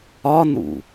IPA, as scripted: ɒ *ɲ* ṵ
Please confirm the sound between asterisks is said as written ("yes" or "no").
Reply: no